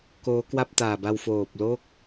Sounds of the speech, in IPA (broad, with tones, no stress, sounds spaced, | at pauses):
k oː˦˥ k w a˥˩ p̚ t aː˨˩ b a˧ w f oː˨˩ p̚ l o˥˩ k̚